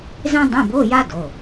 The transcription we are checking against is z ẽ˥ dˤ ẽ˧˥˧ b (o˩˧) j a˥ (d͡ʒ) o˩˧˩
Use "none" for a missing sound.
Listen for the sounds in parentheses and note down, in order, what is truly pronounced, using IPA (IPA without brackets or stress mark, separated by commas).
o˧˥˧, d